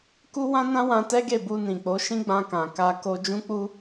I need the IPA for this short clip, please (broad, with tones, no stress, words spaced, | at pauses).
ku˦wã˦nã˦wã˧ tɛ˦ɡe˦˨bu˧ nĩ˨k͡po˨˦ ʃĩ˦ɡ͡bã˧kã˨ ka˧ ko˧d͡ʒũ˦k͡pu˦